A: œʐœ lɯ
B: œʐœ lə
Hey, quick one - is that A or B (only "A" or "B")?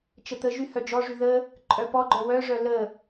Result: B